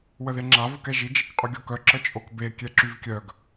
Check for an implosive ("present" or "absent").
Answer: absent